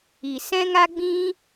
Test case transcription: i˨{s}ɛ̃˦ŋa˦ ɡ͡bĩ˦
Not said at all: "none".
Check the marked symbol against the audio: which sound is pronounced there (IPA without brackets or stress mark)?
s